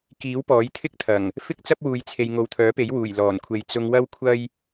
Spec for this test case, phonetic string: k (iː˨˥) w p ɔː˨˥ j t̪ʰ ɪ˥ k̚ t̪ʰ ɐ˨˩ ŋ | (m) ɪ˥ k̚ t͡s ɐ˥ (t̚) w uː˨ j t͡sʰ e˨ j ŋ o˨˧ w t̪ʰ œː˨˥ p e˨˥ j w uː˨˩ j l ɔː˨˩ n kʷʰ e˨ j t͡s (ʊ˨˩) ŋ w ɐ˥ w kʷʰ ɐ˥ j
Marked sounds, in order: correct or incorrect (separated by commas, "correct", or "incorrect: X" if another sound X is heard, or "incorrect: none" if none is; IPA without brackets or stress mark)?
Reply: correct, incorrect: f, incorrect: p̚, incorrect: ʊ˧